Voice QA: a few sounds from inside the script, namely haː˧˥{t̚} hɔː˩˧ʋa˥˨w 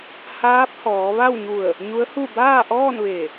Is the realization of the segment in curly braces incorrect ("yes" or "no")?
yes